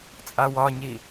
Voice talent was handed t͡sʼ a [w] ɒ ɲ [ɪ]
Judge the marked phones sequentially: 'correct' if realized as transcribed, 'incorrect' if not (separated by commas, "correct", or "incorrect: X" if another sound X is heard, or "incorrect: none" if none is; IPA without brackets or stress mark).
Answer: correct, incorrect: i